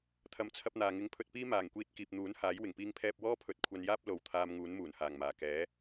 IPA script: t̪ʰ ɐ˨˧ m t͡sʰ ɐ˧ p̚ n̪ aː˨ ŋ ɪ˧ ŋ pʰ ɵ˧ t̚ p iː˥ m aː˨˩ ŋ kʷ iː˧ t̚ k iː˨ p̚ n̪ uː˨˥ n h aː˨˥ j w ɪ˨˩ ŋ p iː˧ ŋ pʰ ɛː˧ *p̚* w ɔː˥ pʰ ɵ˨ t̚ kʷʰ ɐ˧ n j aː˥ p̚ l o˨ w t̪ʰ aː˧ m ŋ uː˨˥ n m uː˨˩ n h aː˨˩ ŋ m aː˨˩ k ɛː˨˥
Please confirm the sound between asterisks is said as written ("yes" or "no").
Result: yes